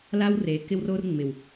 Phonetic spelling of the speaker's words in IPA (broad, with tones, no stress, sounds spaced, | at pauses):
l a˦ w r e˨˦ k ɪ˧ w r o˧ r ŋ͡m ɪ˨ w